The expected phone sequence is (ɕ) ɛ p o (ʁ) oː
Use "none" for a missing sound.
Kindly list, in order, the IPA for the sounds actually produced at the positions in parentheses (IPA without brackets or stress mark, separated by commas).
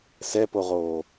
s, ʁ